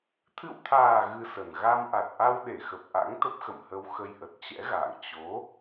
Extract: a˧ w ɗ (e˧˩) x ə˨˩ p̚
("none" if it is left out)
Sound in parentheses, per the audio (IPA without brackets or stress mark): e˧˩